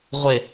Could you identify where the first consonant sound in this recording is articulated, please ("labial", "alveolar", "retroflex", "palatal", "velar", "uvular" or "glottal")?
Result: uvular